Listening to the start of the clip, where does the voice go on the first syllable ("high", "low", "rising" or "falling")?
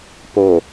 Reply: low